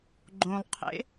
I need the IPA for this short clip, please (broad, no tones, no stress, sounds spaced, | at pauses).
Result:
ɡ͡ǃ õ lˠ qʰ ḛ